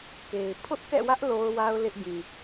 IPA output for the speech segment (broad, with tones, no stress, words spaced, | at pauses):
ke˨ɪ̯ pʰʊ˦ʔkɛ̰˦˨wä˦ʔ lo˦ʊ̯wa˦ʊ̯ lɪ˦ʔ ɡĩ˨